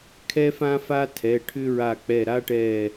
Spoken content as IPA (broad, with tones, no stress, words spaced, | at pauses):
kʰɛ˥fã˥fa˥ tʰɛ˩˧˩ʈʰʏ˥ɹa˧˩k͡pɛ˧˩ ɾa˥ʈɛ˧˩